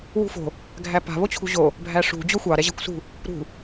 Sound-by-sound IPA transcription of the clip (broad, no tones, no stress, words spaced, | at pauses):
wṳfo̤ | ɡʱæpa̤ βot͡ɕʰṳʑo | bʱæʂṳ d͡ʑoxʷɑ ɾɛʑa̤kʷsṳ | ɾṳ